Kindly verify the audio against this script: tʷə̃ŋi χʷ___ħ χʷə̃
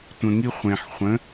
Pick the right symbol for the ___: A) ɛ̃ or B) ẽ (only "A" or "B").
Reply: B